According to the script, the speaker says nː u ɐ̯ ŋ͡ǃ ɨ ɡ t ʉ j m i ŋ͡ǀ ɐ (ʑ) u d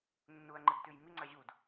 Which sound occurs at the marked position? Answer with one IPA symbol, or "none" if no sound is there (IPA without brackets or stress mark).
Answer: ʑ